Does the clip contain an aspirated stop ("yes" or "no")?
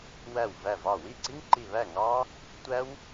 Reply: no